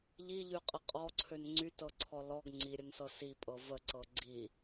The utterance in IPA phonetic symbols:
ʎ i ʎ y qʼ ə qʼ ɔ ǀʰ ø n ŋ͡ǀ y t ɤ ǀʰ ɔ l ɔ ɡ ŋ͡ǀ i ɾʲ ə n s ɤ s i pʼ ɤ v ə ǀ ɤ ɡ͡ǀ i

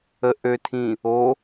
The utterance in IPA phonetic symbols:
ə ʔ ø tʰ ĩ | o

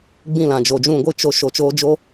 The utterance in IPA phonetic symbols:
ɡ͡b ĩ˦˨ l ã˨ d͡ʒ o˨ d͡ʒ ũ˦˨ ɡʷ ɨ˦ t͡ʃ o˧ ʃ o˨ t͡ʃ oː˧ d͡ʒ o˦

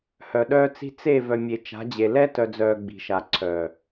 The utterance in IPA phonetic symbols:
h œ˨ ɗ œː˦ t͡s i̤˦ t͡s e˦˨ v œ˨ mʲ e˨ t͡ʃ a̤˨˦ d͡ʑ e˨ l ɛ˦ t œ˨ d͡z œː˨ ɡ͡b i̤˨ ʃ a˨ ǀʰ œː˨

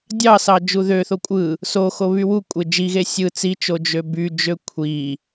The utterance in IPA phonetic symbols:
dʲ ɑ s ɑ d͡ʒ u ð ø θ o kʷʼ ɯ | s o x o β y w u kʷʼ e d͡ʒ i ɣ e sʲ ɯ t͡s i t͡ʃ o d͡ʒ ø b y d͡ʒ ø kʷʰ i

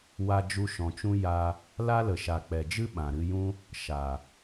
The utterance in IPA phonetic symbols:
w a˧ d͡ʒ u˧ ʃ ɔ̃˨ t͡ʃ ũ˦ j a˧ | l a˦ l ə˨ ʃ a˨ k͡p ɛ˨ d͡ʒ ɨ˦ ɓ ã˨ ɾ ɨ˧ j ũ˦ | ʃ a˨

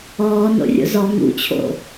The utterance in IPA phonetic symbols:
ɔː n o̰ rʲ o̰ z ɔ ŋ ṵ t͡ɕʰ o̰

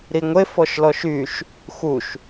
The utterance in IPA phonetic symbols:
ɾ i ŋʷ e f ɔ ʃ l ɔ ʃ y ʃ | x u ʃ

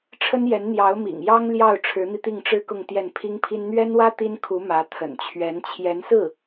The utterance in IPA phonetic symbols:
ʈ͡ʂʰ ə˥ n j ɛ˧˥ n n̪ j ɑ˧˥ ʊ̯ m ḭ˨˩ ŋ j ɑ˥ ŋ l j ɑ˥˩ ʊ̯ ʈ͡ʂʰ ɻ̩˧˥ n̪ i˧ t̪ i˥˩ ŋ ʈ͡ʂ ɻ̩˥ k ʊ˥˧ ŋ t̪ j ɛ˥˩ n pʰ i˥ ŋ pʰ i˥ n n̪ ɥ ɛ˥ n w ä˥ t̪ i˥ n kʰ u˧˥ m ä˧˥ t̪ʰ ə̰˨˩ n t͡ɕʰ ɥ ɛ˧˥ n t͡ɕʰ j ɛ˧˥ n s ɹ̩˥˩

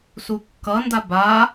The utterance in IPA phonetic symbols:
s u kː ʌ n d a b a

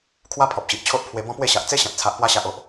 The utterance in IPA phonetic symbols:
kʰ w a˦ pʰ ɔ˨ p̚ ɕ i˨ ʔ t͡ɕʰ o˦ ʔ pʰ w e˧ b ɔ̃˦ p w e˥˧ ɕ a˨ ʔ t͡s e˦ ɕ ã˨ t̚ t͡sʰ a˨ ʔ p w a˧ ɕ a˨ ʔ o˨ ʔ

